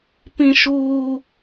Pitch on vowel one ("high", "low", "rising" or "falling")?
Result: high